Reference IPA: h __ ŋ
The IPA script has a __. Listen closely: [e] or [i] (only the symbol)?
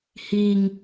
i